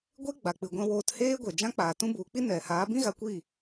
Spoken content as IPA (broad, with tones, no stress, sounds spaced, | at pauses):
ɡʷ e˦ ɡ͡b a˨ k͡p ɨ˨ ɡʷ ɛ̃˧ w oː˧ t h eː˦ ɡʷ ɛ˨ d͡ʒ ã˦ k͡p aː˨ t ũ˦ b u˨˦ k͡p i˦ n ɛ˨ h aː˨˦ b ĩ˦ ɣ a˨˦ kʷ iː˦˨